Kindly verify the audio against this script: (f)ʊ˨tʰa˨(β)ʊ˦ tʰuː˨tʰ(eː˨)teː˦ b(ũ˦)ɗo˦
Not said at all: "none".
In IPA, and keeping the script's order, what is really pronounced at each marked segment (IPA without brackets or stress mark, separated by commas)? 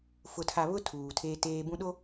f, β, eː˦, ũ˦